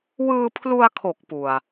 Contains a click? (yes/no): no